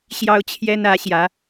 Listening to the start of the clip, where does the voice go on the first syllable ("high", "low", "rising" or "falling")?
high